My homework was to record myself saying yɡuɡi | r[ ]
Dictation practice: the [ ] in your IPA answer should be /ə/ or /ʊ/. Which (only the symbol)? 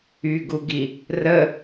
ə